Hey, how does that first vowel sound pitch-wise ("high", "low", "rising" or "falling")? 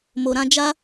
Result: low